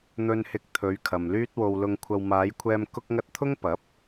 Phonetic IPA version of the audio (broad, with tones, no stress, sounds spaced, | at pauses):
n̪ ɵ˧ n h ɪ˧ k̚ t̪ʰ ɵ˨˧ ɥ kʰ ɐ˨ m l yː˥ t̚ w o˧ w l ʊ˧ ŋ kʷʰ ɐ˧ w m aː˨˧ j kʷʰ ɛː˧ m k ʊ˥ k̚ ŋ ɐ˥ t̚ t̪ʰ ʊ˥ ŋ p ɐ˨˥ p̚